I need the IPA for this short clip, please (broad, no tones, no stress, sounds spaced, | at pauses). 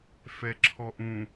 f ɛ ǁʰ ɔ ʔ ũ